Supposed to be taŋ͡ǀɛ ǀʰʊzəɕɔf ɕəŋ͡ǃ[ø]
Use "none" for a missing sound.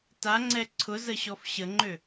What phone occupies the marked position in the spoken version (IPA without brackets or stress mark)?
ø